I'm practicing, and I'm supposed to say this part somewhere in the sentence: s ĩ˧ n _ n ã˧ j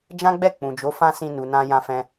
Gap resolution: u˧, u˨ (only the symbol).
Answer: u˨